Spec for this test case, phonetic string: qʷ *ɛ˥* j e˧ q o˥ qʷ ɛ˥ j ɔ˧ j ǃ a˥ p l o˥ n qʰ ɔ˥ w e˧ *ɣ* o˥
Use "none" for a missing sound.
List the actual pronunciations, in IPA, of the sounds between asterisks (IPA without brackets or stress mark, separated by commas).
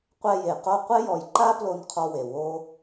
ɛ˥, w